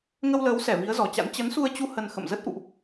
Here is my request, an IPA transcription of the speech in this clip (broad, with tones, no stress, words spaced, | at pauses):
ŋə˧wləː˨˦wsɛ˧˩ vi˨˦ə̯zɔ˨˩t͡ɕa̰˧˥n t͡ɕə˨˦nsu˧ə̯t͡ɕu˧ hə˧nxə̰˧˨m zə˦˥t̚ʔṵ˧˨ʔ